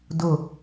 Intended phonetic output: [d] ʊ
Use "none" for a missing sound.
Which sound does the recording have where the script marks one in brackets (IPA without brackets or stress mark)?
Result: d